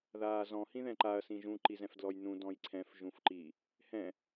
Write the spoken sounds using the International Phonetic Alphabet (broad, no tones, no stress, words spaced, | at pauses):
ðaːzɔ̃ hĩðɛ̃ǃaɐ̯ sĩʒũ ǃizɛ̃fdlɔjnũ dɔ̃jǀʰɛ̃f ʒũfǃi | hɛ̃